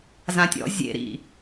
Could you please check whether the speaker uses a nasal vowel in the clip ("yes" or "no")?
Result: yes